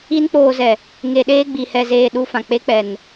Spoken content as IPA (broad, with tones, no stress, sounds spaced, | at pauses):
i˦ n k͡p oː˧ z ɛ˨ | ŋ e˧ ɗ eː˦ ɡ͡b i˨ h ɛ˧ z eː˧ ɗ u˧ f ã˨ k͡p e˦ k͡p ɛ˨ n